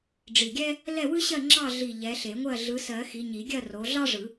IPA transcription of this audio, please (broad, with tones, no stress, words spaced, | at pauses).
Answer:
ɖ͡ʐi˧˩ɡʲɛ˥ | lɛ˥˨wɯ˥ɕɜ˥˨ ŋ͡ǁɑ˥˨ɮi˧˩ ʎɛ˨˦ɬe˨˩˦ŋʷɜ˥˨ ɮɯ˨˦sɜ˨˩˦ xi˨˦ ɲi˨˩˦ɡʲɜ˥˨ro˨˦ ɮɑ˥ʐɯ˨˩˦